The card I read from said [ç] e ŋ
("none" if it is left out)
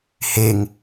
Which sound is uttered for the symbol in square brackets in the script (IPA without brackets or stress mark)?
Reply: h